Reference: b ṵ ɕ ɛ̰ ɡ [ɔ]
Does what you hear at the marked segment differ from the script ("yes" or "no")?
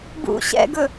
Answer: yes